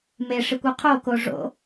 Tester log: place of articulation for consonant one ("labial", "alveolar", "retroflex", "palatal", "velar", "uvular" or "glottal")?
labial